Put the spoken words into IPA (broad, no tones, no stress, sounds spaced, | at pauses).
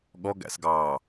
ɠ ɔ ɡ æ̰ s ɡ ɑː